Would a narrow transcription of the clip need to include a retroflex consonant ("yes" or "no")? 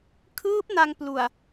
no